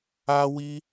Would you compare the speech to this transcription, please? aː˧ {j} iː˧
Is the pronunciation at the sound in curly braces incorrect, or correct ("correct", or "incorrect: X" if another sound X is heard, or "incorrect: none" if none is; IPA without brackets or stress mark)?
incorrect: w